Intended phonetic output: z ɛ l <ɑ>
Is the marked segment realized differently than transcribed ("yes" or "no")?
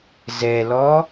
yes